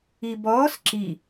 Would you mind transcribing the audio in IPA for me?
i b ɔː s ǁ i

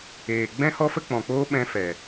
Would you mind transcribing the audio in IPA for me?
eː˨ ɡ͡b ɛ̃˦ h ɔ˦ f ə˦ k͡p ɔ̃˨ k͡p oː˦ ɓ ɛ̃˦ f ɛ˨

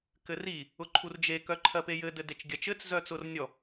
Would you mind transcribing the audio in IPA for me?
k ɘ r i | ʊ ǃʰ u r d͡ʒ e k œ ǃʰ ɜ p e j ɘ d ɘ d e t͡ʃ ɡʲ ɜ t͡ʃ ɘ t͡s z œ t͡s ʊ r nʲ ɔ

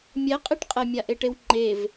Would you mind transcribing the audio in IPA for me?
mʲ ɛ qʼ i ʈ qʼ ɛ mʲ a ʔ e ʈ e w ŋ͡ǃ e v

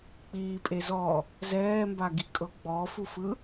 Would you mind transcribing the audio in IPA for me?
k͡p iː pʼ e z ɔ | z ɛː m b a ɡ i kʼ ɤ ɡ͡b ɔ f u f ɯ

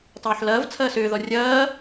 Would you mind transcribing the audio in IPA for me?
tˤ oː ħ l ɐː v t͡sʰ ɐː s ʏː ð ɔ rʲ ɐː

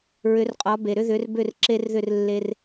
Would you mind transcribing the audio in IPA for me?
ɹ ʏ˨˦ r qʼ ɒ˨˦ b e˨ ɾ ʏ˦ ð ʏ˨˦ r b ʏ˥˨ r ǁ e˦ r ð ʏ˥˨ r lː e˦ r

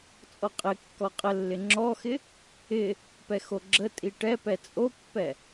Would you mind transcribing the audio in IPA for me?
t͡sʼ ɔ qʼ ɪ kː ɔ qʼ ə lː ɪ ŋ͡ǁ ɔ x ɪ | ɪ | p ɛ x o ɡ͡ǁ ə tʼ i ʈ ɛ p ɛ t͡sʼ o pː ɛ

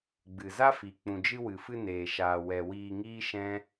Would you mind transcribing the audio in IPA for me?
ɡ͡b ɨ˨ z a˦ f i˨ k͡p ũ˨ d͡ʒ ɨ˧ w ɨ˨ f ɨ˧ n eː˨ ʃ aː˨ w ɛ˨ w iː˧ ŋ iː˦ ʃ ɛ̃˦

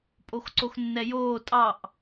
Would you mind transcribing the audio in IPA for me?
pʼ o x ǀ o x nː ɛ j oː tʼ ɑ ʔ

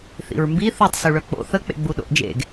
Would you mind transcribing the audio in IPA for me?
θ ḭ ɹ m b i θ u tˤ s u ɭ œ k͡p o̰ θ ə k͡p ḛ ɡ͡b u ɗ o̰ ʔ d͡ʒ ḛ ɡ

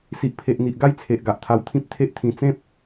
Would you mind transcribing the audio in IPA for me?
s i˨ ʔ pʰ e˨ ʔ n̪ i˨ ʔ ɡ a˥˧ j t͡sʰ e˨ ʔ ɡ a˨ ʔ t̪ʰ a˧ w t̪ʰ ĩ˦ p̚ t̪ʰ e˦ ʔ t̪ʰ ĩ˧ t͡s ẽ˦ p̚

